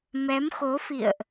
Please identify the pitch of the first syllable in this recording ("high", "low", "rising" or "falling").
rising